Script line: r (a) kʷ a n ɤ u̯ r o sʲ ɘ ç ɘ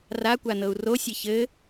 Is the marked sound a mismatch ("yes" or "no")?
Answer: no